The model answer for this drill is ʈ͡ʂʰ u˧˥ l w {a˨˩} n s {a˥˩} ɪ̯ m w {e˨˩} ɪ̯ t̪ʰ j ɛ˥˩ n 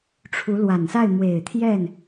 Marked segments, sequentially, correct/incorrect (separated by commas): correct, correct, correct